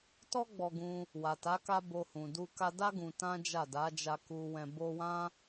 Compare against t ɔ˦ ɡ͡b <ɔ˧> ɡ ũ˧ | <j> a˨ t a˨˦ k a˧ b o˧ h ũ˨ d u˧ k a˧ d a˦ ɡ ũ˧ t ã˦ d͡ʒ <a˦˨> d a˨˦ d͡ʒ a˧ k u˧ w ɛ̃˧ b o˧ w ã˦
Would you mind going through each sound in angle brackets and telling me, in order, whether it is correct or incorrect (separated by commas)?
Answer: correct, incorrect, correct